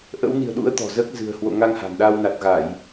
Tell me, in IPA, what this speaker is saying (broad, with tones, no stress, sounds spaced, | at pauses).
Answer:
ʔ ə̰˧˥ w n i̤˨˩ ə̯ ɗ ṵ˧˥ ə̯ t̪ ɔ̤˨˩ z əː˦˥ k̚ z ɨ̤˨˩ ə̯ h w o̰˧˨ ŋ a˧ ŋ h a̤˨˩ n ɗ a˧ w n a˨˩ t̚ ɣ a˧˩˨ j